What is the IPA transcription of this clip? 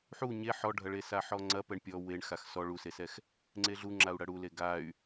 ħu ɲe ħɔɖʱɐɭe saħɔŋ͡ǀɐ pɛɳpʲɔ weɳxax sɔ ɭusesɛx | ŋ͡ǀeɮu ŋ͡ǁau̯ɽɐɽule ɡay̯

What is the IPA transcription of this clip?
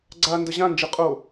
ɡ͡ǀa ndəʑãnd͡ʒɯ qʼo

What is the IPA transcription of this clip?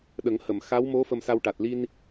ɗə˨˩˦ŋhə˨˩˨m xa˧˥wmo˧˥ fə˧msa˧wʈa˨˩t̚ li˧n

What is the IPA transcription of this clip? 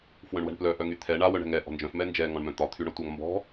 fwœ̃ɳwɛ̤ɳplœ ʔœŋyt̪ʰɛ ɳa wœɳɛ̤ŋɛ ʔɔ̤nd͡ʒœ̃f mɛnd͡ʒɛ ŋɔ̃ɳmœ̃t̪ɒ t̪ʰyɳɒtʷaŋ mbɔ̤

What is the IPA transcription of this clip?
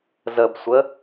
zəbsʷə

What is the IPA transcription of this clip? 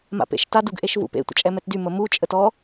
ma̰pḛʃtad uɡʔeʃvṵpḛ tʷə̰t͡ʃʼɛmɛtdy məmu t͡ʃʼətɔ

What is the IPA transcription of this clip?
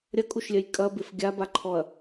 ɾʲɐkʼuʃlʲœj kʼɐbɪf ɡʲabaǃʰɔɐ̯

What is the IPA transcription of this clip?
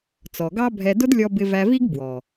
t͡sɔ˨ɡɑ˦bʱɛ˧ dʊ˦dlʲɔ˧ bɪ˧væ˧vi˦ɡ bwɔ˨

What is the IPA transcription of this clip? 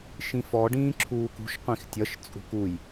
ʃĩfɔ ɖĩːǁʰuːkṳʃ qʷĩxtʲʌʃ t͡sʼṳkuj

